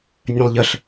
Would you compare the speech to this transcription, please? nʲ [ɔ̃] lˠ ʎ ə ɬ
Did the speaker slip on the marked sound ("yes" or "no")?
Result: yes